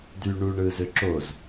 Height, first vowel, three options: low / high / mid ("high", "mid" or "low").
high